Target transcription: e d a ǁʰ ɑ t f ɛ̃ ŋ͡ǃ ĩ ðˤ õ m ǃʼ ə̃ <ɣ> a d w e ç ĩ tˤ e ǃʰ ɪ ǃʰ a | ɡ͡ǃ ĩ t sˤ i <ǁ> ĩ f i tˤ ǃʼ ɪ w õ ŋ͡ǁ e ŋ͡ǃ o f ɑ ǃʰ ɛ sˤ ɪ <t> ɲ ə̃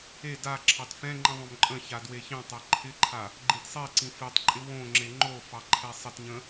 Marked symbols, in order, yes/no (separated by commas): no, no, yes